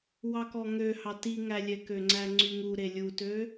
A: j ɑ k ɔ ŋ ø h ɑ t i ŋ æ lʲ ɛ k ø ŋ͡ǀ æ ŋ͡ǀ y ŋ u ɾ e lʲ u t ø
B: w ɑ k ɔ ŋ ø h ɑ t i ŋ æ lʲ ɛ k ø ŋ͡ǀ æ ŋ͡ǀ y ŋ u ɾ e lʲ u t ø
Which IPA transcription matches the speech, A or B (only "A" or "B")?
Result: B